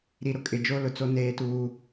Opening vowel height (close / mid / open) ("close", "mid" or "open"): close